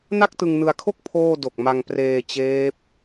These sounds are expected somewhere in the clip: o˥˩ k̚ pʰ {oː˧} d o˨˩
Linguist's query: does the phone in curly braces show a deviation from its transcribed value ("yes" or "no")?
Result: yes